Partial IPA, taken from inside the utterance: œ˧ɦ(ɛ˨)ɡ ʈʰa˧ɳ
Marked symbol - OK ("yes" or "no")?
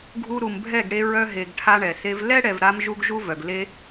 no